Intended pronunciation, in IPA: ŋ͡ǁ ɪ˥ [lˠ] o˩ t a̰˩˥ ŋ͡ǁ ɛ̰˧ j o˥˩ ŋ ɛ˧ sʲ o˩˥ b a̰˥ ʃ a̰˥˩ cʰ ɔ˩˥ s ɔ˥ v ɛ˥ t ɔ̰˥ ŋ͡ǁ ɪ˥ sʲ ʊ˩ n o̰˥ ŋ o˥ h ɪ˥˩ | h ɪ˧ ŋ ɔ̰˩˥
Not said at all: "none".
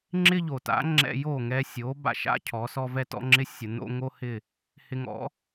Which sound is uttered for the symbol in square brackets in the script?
ʎ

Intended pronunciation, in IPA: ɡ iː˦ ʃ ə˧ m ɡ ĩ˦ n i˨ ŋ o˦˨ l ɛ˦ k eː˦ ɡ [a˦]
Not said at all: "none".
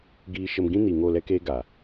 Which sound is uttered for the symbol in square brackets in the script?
a˨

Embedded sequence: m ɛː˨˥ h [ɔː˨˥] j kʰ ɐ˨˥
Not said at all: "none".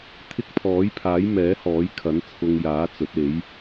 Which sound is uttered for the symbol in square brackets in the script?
ɔː˨˥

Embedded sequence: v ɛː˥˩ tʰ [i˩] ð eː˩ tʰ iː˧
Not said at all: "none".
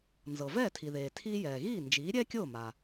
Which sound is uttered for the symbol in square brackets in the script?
i˩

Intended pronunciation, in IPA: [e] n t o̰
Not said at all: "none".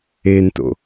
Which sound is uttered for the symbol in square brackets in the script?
e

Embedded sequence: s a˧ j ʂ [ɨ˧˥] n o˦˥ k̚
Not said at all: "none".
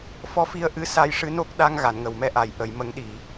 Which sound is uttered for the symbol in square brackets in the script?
ɨ˧˥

